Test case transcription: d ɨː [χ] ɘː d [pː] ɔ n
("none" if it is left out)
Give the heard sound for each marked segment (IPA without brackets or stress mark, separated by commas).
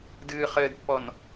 χ, pː